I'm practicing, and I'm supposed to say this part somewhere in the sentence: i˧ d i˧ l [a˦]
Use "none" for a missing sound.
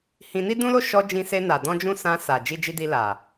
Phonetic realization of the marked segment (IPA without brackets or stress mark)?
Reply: a˨